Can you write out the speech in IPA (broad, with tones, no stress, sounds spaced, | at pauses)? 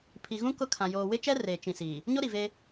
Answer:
pʰ i˨ ɣ ũ˦ k ʊ˦ kʰ ã˨ j oː˨ w ɪ˦ t͡ʃ ɛ˦ r eː˨ t͡ʃ ĩ˨ s iː˨ | ɲ o˦ ɾ i˨ v e˦